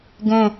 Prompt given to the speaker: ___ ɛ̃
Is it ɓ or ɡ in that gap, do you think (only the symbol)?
ɡ